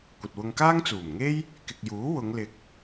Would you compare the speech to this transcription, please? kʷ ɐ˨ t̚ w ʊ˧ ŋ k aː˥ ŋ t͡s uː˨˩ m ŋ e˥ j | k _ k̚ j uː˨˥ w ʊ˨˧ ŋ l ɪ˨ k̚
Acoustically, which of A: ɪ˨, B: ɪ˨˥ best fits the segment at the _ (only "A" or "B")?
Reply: A